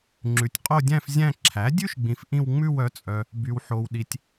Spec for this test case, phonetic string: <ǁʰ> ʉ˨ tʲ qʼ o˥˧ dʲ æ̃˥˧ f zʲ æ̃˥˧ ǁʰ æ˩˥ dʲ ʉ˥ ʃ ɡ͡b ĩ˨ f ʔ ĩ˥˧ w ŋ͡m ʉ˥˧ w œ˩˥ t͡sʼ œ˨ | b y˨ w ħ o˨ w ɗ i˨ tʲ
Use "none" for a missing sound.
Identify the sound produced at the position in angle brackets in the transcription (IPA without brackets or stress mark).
ŋ͡ǁ